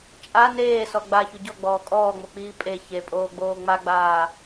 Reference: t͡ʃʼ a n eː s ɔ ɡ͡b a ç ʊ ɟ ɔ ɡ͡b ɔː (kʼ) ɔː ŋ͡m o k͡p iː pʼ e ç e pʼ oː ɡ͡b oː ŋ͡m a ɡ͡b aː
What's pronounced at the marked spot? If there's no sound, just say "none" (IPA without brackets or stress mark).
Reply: kʼ